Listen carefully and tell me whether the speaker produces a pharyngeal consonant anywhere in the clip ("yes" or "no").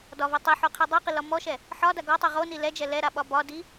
yes